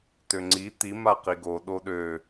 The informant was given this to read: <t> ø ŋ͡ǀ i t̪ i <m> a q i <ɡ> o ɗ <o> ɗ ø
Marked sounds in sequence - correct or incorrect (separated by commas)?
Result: correct, correct, correct, correct